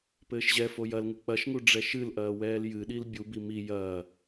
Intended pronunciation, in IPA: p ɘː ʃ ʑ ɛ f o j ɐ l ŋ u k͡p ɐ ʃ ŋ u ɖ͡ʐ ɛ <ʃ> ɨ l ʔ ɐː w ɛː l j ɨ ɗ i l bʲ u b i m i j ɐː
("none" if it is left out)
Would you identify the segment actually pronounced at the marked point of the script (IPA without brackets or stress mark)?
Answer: ʃ